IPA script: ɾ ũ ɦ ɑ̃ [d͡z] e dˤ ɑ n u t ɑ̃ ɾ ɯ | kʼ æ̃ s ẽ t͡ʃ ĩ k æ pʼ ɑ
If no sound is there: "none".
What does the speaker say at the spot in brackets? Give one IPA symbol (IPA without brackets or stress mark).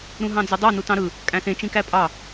d͡z